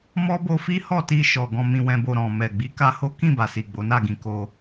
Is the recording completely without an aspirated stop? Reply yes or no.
yes